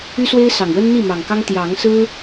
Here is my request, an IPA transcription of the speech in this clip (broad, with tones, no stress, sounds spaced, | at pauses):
y˦ s w e˦ ɪ̯ s ɑ˨˩ ŋ w ə˦ n n̪ i˥˨ m ɑ˨˩ ŋ k ɑ˦ ŋ t̪ j ɑ˨˦ ŋ s ɹ̩˦